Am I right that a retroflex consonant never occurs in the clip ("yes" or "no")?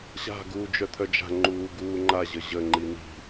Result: yes